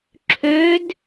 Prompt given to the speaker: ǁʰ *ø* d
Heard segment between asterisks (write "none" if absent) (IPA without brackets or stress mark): ø